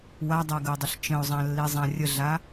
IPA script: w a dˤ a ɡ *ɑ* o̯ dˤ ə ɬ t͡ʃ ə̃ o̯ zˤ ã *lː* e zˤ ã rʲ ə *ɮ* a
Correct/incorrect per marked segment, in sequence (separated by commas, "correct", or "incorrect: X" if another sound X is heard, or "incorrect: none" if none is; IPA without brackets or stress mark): incorrect: ə, correct, correct